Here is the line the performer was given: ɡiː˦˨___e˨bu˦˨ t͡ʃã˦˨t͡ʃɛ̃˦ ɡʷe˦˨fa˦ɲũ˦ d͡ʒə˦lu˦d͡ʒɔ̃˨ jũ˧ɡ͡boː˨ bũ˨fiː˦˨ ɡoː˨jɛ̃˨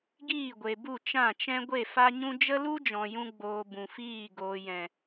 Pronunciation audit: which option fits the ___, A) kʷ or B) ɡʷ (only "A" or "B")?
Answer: B